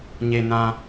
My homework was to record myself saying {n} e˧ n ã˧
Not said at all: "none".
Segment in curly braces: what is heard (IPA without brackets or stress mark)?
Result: ɲ